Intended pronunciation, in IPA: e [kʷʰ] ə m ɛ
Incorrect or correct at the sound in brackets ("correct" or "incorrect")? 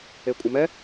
incorrect